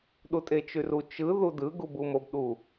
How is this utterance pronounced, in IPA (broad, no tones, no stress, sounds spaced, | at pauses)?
ɗ u tʼ e t͡ʃ y r u t͡ʃ ɯ ð u d ɯ ɡ u b u m o b ɗ u